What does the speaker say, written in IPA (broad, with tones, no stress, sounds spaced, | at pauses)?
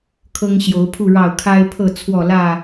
kʰ ɤ˦ ŋ ɕ j o˨˦ ʊ̯ pʰ u˥˨ ɻ ɑ˥˨ ʊ̯ kʰ a˦ ɪ̯ pʰ ɤ˥˨ t͡sʰ w ɔ˥˨ l ä˥˨